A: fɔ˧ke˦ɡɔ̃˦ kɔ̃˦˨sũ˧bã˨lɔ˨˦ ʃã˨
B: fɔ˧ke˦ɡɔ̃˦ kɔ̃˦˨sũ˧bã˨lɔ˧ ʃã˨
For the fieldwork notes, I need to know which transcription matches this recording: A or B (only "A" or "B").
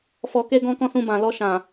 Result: B